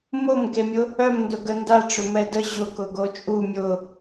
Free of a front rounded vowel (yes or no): no